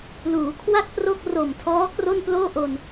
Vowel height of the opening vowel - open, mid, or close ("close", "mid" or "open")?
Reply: close